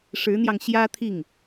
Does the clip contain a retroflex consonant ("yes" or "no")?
yes